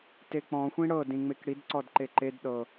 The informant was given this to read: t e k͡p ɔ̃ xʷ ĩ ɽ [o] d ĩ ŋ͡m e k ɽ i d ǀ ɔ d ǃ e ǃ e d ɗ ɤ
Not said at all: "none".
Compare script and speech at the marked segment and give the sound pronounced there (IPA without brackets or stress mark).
ɤ